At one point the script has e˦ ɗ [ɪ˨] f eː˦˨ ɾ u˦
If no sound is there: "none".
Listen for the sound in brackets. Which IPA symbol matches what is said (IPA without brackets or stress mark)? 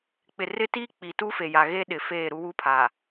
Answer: ɪ˨